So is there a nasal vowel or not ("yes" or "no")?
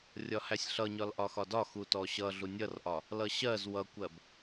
no